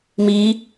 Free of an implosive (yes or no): yes